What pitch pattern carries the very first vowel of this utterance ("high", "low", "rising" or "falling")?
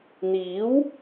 rising